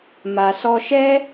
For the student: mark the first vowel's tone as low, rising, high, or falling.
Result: low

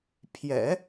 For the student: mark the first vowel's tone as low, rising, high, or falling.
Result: low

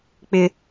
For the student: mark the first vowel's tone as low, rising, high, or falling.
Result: high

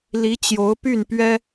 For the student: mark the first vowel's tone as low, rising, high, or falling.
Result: rising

